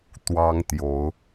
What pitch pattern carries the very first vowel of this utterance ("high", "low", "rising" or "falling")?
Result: high